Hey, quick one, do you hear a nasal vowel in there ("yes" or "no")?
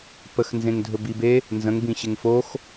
yes